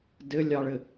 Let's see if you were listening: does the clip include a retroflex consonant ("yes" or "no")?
yes